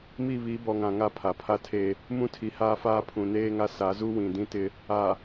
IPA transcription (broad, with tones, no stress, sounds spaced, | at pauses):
m i˦˨ β i˨˦ b ɔ˨ ŋ ã˨ ŋ a˦ pʰ a˨ pʰ a˦ tʰ e˦ | m ũ˦ tʰ i˨ h aː˦ f aː˦ pʰ ũ˨ n eː˦ ŋ a˦ s a˨˦ z u˦ w ĩ˨ d ĩ˦ t ɪ˦ | a˨